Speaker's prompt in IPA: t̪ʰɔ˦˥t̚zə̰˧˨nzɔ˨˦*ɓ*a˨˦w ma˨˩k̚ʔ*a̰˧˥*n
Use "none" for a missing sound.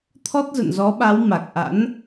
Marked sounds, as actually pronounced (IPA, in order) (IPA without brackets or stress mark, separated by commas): ɓ, a̰˧˥